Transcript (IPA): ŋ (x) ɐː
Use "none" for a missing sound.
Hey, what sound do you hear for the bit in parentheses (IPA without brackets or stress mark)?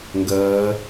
ɡ